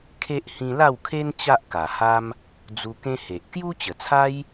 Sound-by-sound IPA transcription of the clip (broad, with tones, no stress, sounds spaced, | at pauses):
kʰ e˦ ʔ h ĩ˧ l a˥˧ w kʰ e˦ n t͡ɕ a˦ ʔ k a˨˩ h a˦ m | d͡z u˧ k ẽ˦ h e˨ ʔ k j u˦ t͡ɕ ə˨˩ t͡sʰ a˦ j